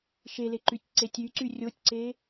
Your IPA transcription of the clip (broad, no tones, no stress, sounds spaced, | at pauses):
ʃ e l e ǃ y tʲ ǀ e tʲ y ǀ y rʲ o tʲ ǀ e